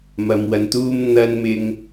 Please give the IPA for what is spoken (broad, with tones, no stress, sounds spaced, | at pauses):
m ɐ˨ m w ɐ˨ n t̪ uː˧ m n̪ ɐ˧ n m ɪ˧ ŋ